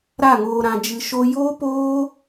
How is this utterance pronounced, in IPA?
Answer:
ɾ a˦˨ ŋ oː˧ ɾ ã˧ d͡ʒ ɨ˧ ʃ o˧ j oː˦ p oː˦

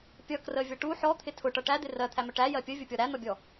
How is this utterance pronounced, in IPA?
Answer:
pʲ ʌ k r ə vʲ ʌ ʈ u ħ ɔ t̪ʰ ɪ tʰ ʊ ʈ ʌ ʈ æ d̪ ɪ r ɜ t̪ʰ æ m ə ʈ æ j ɜ pʲ ə vʲ ʊ pʲ ɔ ɾ æ n̪ ʌ bʲ ɔ

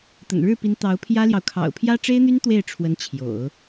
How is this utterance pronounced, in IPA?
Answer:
t̪ ə̰˨˩ n ɻ ɻ̩˥˩ p i˧˥ n t̪ ɑ˧˥ ʊ̯ pʰ j ä˥ l j ɑ˨ ʊ̯ kʰ ɑ̰˨˩ ʊ̯ pʰ j ä˥ ʈ͡ʂ e˥ ɪ̯ n̪ y˥ n t̪ w e˥˩ ɪ̯ ʈ͡ʂʰ w ə˧˥ n t͡ɕʰ j o̰˨˩˦ ʊ̯

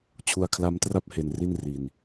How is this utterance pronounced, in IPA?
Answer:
t͡ɕʰ u˧ a̯ kʰ l a˦˥ m t r a˦˥ p̚ h e˧ n r i˥˩ n r i˧ n

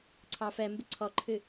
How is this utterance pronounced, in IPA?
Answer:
ǀʰ ɑ f ɛ m b ɪ ǀʰ ɔ ǃʰ ɨ

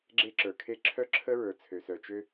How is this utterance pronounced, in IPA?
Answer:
ɡ͡ǁ e˥ ǁ ə˞˩ kʰ e˥ ǁʰ œ˥ ǁʰ ə˥ ɹ ə˞˩ t͡sʰ ø˩ s œ˩ t͡ʃ ø˥

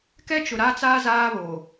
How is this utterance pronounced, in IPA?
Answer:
k ɛ˦ t͡ʃ ʊ˨ ɾ a˦ t͡s aː˦ z aː˦ β oː˨

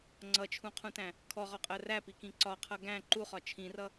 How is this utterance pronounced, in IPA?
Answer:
ŋ͡ǀ ʌ t͡ʃʰ ũ qʰ ũ t æ̃ | kʰ ɔ ʁ ɔ qʼ ɜ r æ p i k ĩ ǀ ɒ qʰ ʌ ɡ æ̃ ǃ u χ ɒ t͡ʃʰ ĩ r ʌ

